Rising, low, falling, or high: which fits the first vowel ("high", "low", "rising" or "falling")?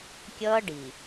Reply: high